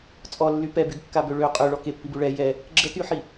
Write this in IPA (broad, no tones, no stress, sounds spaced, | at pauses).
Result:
t͡sʼ ɔ lː y p ɛ b y ɡ kː a b ø ɭ ø qʼ ø ɭ ɔ k e pː i b u ɭ ɛ j ɛ | ɡ͡ǁ ə t y ħ i